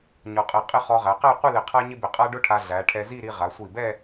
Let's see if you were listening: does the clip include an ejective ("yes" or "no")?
yes